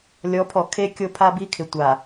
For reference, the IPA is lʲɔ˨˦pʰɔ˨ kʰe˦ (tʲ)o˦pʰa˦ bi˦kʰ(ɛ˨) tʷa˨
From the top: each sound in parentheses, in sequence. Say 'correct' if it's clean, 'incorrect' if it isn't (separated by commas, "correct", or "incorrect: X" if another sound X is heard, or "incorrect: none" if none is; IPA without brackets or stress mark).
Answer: incorrect: kʲ, incorrect: ɪ˨